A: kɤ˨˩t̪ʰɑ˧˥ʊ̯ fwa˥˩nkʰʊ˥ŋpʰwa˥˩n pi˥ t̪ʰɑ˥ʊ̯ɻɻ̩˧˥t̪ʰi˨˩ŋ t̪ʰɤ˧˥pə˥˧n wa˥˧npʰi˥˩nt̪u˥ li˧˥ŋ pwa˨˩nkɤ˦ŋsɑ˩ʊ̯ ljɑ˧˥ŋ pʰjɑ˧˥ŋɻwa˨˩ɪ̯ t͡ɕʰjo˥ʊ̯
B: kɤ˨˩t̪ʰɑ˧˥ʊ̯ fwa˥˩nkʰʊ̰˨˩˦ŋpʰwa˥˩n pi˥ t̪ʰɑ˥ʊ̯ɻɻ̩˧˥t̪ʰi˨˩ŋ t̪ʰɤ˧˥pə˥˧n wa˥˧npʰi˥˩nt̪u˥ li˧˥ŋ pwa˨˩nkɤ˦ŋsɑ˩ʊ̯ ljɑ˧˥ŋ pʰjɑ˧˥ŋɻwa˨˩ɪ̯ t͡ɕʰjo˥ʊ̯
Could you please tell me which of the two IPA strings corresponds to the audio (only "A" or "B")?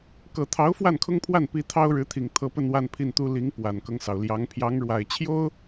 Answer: A